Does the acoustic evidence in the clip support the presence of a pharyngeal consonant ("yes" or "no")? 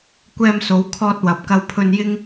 no